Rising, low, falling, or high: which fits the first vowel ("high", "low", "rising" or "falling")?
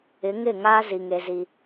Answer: rising